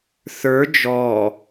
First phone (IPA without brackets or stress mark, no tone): θ